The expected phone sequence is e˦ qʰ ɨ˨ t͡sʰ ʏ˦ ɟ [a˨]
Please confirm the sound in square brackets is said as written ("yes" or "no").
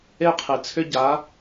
no